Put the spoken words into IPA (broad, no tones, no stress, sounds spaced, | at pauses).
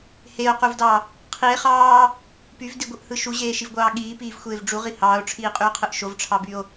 h e o̯ q u v d ɑ | qʰ i e̯ χ ɑː | p y v d i ɡʷ ɯ ʔ h ɯ ʃ u ʑ eː ʃ i v ɡʷ ɑː ɠ iː p iː v xʷ eː v ɖ͡ʐ u ʁ i h ɑː o̯ ʈ͡ʂʰ iː qʼ y o̯ qʰ ɯ ʔ ʃ o v ʈ͡ʂʰ ɑ b y o̯